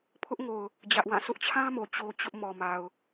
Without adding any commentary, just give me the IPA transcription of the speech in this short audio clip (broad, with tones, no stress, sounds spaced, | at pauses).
pʰ ʊ˦ ʔ ŋ o˨ ʊ̯ | d͡ʑ ä˦ ʔ w ã˦˨ sʰ ʊ˦ ʔ t͡ɕʰ ã˦ m o˨ t͡ɕ o˦ t͡ɕ ʊ˦ ʔ m ɔ˨ m a˨ ʊ̯